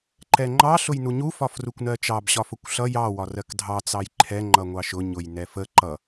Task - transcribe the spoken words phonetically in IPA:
ǃ ɛ ŋ͡ǃ ɑ ɬ ʊ j n u ɲ u f ɒ f r u kʷ n ɜ t͡ʃ ɑ b ɕ ɒ f ʊ kʷ ɬ ʌ j ɑ w ɒ r ɜ k dʱ ɑ t͡s ɑ j ǃʰ ɛ ŋ͡ǃ ʌ ŋʷ ɑ ʃ ʊ ɲ ʊ j n ɛ f ə ǃ ʌ

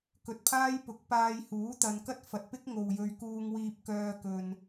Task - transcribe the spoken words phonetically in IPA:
k ɵ˨ t̚ pʰ aː˥ j p ʊ˨˥ k̚ p aː˧ j h uː˨˥ t̪ ɐ˨ n k ɐ˥ t̚ f ɐ˨ t̚ p ɪ˥ k̚ ŋ o˨ w j ɵ˧ ɥ k uː˧ ŋ w iː˧ p̚ k œː˧ k ɵ˨ n

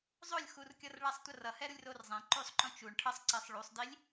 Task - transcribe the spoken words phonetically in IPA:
zˤ o lʲ x u r kʲ ʌ r ɭ a sˤ tʷ ʌ r ʌ h ɛ ɾ u lʲ r o r zˤ ɛ̃ ǃ u sˤ ǃ õ t͡ʃ u ɳ ʈʰ ʌ sˤ ǀ ɛ sˤ ɭ u sˤ d i lʲ

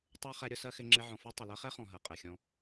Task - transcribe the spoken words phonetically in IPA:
tˤ ɜ˦ χ ɛ˧ ɾʲ ʊ˧ s ɜ˦ x ɪ˧ ŋ͡ǁ ɪ˧ ʕ ɔ̃˨ f ɔ˦ tˤ ɪ˨ l ɜ˧ χ ɛ˦ χ ɔ̃˨ ɦ ɜ˨ qʼ ɛ˨ xʲ ɔ̃˧

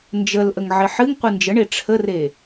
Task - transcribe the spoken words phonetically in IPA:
n d͡ʒ ə l ʔ ə ŋ ʕ ɪ ħ ɨ ŋ qʷ ɨ n d͡ʒ ə ɳ e ʈ͡ʂʰ ə r e

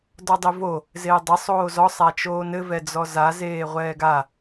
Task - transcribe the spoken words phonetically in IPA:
d ɔ dˤ i v o | z eː dˤ ɘ sˤ oː z ɔ sˤ æ t͡ʃ oː n ɘ v ɛ d͡z ɔ z a z eː ʁʷ ɛː ɡ a

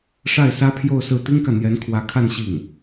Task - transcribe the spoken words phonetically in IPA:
ʂ a˥˩ ɪ̯ s ä˥ pʰ j o˥˧ ʊ̯ s ɹ̩˥˩ t̪ i˥ ŋ k ä˨ n̪ j ɛ˧˥ n kʰ w ä˧˥ kʰ a˥˧ n ɕ i˥˩ ŋ

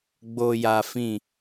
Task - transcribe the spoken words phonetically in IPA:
ɡ͡b o˨ j a˨ f ĩ˨

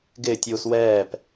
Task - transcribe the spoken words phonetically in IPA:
ɡ ɪː tʲ uː s w ɛː p

